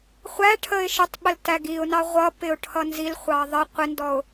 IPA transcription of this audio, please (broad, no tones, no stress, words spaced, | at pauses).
χʷæʈʰəɪ̯ ʃətˤɓəl tæɡiʊ̯nɑ ʁʷʌpɪʊ̯ ʈʰʌnzilχʷɑ ðˤə qʷɪndɔʊ̯